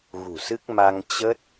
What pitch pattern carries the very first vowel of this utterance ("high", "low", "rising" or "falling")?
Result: low